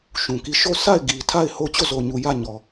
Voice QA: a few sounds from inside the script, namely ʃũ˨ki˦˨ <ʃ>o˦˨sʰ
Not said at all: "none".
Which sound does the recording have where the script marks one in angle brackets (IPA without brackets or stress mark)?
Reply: ʃ